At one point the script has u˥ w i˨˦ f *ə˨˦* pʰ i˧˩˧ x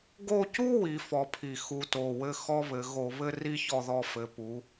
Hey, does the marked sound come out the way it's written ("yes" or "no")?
no